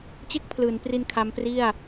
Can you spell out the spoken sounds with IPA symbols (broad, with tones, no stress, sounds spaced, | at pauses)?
t͡ɕ e˥˩ k̚ pʰ l ɯː˩˦ n p r i˧ n kʰ a˦˥ m p r i˥˩ a̯